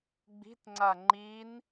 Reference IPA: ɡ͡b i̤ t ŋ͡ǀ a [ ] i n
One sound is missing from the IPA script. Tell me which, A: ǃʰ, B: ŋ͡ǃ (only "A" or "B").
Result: B